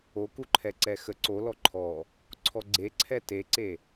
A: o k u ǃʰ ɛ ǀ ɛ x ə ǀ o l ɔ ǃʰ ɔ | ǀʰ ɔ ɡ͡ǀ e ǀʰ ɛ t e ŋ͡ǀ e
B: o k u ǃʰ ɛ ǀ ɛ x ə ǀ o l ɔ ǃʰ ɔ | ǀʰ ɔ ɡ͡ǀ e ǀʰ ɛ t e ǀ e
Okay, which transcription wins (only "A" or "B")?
B